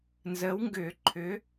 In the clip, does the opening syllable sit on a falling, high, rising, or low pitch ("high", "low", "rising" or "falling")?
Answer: rising